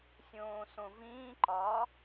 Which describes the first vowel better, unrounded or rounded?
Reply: rounded